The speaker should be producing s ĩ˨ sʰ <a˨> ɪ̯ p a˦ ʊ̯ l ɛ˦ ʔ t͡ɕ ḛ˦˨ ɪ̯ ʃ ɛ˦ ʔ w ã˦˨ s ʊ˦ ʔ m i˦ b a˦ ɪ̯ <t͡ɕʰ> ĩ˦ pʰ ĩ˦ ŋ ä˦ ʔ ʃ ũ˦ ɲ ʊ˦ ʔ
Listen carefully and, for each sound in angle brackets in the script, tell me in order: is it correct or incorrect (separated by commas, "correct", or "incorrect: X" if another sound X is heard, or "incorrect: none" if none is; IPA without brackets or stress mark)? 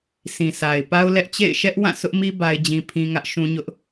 correct, incorrect: d͡ʑ